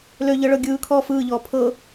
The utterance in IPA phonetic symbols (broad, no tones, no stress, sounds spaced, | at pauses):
l ø ʎ ɤ ɭ ɤ ɡʲ ɯː kʰ ɔː f ɯː ʎ ɔː pʰ ɤ